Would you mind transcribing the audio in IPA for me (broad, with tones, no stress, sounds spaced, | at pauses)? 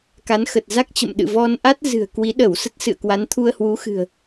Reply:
k a˨˦ n x ə˨˩ t̚ z a˦˥ k̚ t͡ɕ ə̰˧˨ m ɗ ɨ̰˧˨ v ɔ˧ n ʔ a˦˥ t̚ z ɨ̤˨˩ ə̯ k w i˨˦ ɗ ə˧˩ w s ə˦˥ t̚ s ɨ̰˧˨ ə̯ k w a˨˦ n t̪ʰ u˧ ə̯ h w u˨˦ x ɨ̤˨˩ ə̯